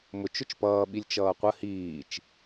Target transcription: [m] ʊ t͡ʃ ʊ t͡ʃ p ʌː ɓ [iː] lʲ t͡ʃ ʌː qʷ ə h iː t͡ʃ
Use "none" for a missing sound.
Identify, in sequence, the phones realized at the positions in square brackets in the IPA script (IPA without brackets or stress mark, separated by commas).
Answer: m, i